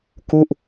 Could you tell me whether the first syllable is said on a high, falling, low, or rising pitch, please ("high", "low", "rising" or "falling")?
falling